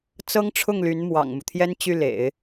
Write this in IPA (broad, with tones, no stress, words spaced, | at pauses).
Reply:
t͡sɤ˥ŋʈ͡ʂʰʊ˥˩ŋ ly˧˥nmwɑ̰˨˩ŋmu˦t̪ʰjɛ˥n t͡ɕy˥˩lḛ˨˩˦ɪ̯